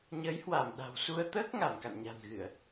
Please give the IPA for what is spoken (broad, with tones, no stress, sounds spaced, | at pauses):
ɲ əː˨˦ j h w a˧˩ m ɗ a̤˨˩ w s u˧ ə̯ t̪ əː˦˥ k̚ ŋ a˧˩ m k a̰˧˨ n ɲ a̤˨˩ n ɣ ɨ˧˩˨ ə̯